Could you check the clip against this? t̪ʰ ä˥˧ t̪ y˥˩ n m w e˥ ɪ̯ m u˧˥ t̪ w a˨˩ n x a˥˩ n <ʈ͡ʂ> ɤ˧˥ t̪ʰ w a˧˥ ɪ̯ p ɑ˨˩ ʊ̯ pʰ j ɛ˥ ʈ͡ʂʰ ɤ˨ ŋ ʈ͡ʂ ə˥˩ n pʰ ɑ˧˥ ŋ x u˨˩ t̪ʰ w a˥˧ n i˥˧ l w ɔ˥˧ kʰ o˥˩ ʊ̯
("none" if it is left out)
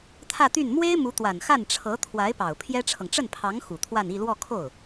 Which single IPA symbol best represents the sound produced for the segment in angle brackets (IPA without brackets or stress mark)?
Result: ʈ͡ʂʰ